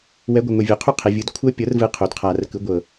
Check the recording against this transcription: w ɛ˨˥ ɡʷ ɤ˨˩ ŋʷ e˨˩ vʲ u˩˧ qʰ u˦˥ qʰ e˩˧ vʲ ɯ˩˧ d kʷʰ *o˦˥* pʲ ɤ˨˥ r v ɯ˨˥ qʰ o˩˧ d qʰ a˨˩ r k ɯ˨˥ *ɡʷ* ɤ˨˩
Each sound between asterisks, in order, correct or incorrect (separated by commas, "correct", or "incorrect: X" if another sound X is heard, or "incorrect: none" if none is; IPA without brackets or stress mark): incorrect: ɤ˦˥, correct